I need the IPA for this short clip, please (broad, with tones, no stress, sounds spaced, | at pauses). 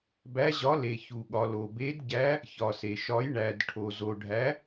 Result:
b æ˨˦ ʑ ɒ˨˦ l e˩ ç u˩ ɠ ɒ˩ l o˩ b e˨˦ d ɟ æ˨˦ | ç ɒ˩ s e˩ ʃ ɒ˨˦ j ɳ æ˩ d ʈʰ o˩ z o˩ ɖʱ æ˨˦